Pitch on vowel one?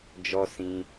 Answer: high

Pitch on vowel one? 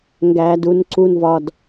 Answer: high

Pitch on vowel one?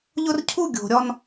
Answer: high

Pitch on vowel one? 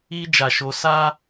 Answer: high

